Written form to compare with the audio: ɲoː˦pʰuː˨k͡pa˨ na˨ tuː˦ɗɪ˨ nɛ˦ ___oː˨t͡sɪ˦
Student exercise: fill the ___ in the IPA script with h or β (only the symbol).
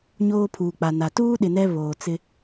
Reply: β